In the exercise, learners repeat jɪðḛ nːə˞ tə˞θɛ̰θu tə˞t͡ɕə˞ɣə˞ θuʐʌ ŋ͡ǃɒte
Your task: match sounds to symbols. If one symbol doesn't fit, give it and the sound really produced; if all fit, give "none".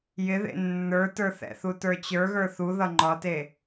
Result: ʐ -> ð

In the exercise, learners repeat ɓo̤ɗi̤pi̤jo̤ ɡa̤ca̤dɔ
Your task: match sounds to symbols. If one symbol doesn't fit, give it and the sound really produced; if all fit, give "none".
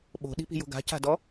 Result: none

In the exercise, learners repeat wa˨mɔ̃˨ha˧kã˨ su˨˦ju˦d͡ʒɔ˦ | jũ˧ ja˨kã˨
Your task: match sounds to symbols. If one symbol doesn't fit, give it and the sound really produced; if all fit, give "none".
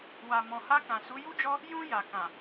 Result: none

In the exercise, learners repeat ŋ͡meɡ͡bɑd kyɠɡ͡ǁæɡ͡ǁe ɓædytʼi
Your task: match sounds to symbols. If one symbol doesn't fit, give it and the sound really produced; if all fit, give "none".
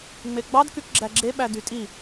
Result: ɠ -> k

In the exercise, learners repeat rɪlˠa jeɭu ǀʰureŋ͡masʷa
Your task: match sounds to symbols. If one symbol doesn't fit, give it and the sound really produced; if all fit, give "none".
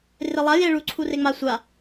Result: none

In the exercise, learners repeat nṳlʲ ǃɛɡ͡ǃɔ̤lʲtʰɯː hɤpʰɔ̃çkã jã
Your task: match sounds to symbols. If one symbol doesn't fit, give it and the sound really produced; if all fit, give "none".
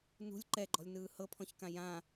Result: tʰ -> n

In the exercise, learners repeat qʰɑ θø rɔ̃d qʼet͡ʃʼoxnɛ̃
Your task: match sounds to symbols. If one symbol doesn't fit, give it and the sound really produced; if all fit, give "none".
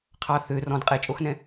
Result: none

